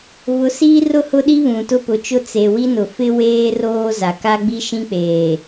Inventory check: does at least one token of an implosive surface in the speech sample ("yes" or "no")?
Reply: yes